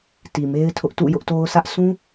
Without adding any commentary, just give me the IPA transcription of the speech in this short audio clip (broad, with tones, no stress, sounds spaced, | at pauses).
t i˨ m e˦ ɪ̯ tʰ ʊ˦ ʔ t ṵ˦˨ j ʊ˦ ʔ t o˦ ʊ̯ s ä˦ ʔ s ũ˦